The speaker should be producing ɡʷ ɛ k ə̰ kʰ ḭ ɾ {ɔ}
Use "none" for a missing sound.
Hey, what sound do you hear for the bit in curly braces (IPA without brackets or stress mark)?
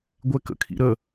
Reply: ə